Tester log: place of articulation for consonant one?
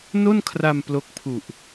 alveolar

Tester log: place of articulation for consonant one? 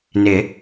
alveolar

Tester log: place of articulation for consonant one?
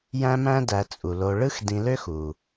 palatal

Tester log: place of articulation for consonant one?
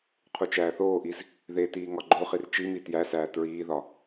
uvular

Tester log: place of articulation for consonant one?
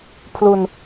labial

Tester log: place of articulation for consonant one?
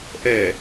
glottal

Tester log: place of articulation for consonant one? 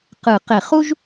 uvular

